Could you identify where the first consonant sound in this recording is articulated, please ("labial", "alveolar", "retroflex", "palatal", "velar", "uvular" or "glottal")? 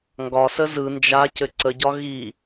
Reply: velar